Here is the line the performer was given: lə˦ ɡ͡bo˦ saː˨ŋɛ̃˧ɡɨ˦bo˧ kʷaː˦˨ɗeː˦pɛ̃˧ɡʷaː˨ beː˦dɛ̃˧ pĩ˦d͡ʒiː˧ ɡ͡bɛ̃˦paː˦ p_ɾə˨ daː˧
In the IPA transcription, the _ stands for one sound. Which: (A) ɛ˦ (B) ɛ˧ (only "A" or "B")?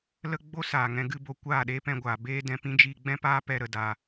B